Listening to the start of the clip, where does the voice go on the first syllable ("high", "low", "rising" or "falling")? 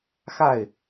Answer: falling